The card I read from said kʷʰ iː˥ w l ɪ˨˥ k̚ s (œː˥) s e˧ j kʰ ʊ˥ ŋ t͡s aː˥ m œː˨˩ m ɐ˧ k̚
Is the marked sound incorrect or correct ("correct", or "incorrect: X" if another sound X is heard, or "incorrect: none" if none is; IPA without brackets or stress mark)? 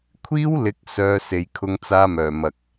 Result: correct